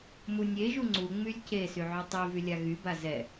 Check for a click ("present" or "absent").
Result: present